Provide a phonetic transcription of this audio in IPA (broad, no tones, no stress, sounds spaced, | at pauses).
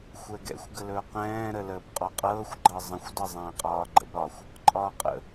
xʷ ɛ ɡ ɛ̰ xʷ ɡ ə l ɵː q ɛ̃ː ɾ ə l əː b qʼ ɔ qʼ ɤː xʷ ɡ͡ǃ ɤ zˤ ə̃ xʷ d ɤ zˤ ɛ̃ː qʼ ɒː ɡ͡ǃ ə̰ b ɾ ɒ xʷ | ǃʼ ɒː qʼ ə̰